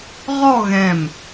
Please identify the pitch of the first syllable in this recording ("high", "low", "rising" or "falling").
falling